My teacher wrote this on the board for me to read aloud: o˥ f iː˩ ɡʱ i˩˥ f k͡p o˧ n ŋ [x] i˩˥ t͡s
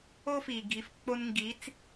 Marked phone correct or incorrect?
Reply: incorrect